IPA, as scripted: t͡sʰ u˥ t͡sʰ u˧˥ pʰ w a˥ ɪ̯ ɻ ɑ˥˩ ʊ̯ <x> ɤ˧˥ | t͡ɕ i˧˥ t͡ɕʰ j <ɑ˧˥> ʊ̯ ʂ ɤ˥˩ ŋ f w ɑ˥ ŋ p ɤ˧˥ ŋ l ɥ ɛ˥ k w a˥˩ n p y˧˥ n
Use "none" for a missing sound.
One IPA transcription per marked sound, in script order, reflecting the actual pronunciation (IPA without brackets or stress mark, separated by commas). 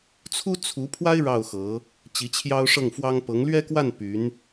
x, ɑ˥